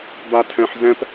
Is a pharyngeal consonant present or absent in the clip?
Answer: present